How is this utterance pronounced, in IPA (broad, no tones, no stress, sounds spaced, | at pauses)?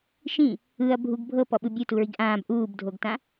ʃ ĩ | ɯ ɐ̯ bʱ u ɡ bʱ ɤ p ɔ ɓ ɯ bʲ u t u ɹ i ɡ ʔ ãː b ʔ uː b dʱ o ɡ t ã